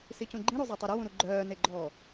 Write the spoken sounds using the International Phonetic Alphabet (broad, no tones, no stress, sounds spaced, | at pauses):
s i c ũ ɡ͡ǃ ĩ ɾ u zˤ e tˤ ɛ ɾ œ w ũ ɾ u ɡ͡ǃ œː n e ɡ͡ǃ ɔː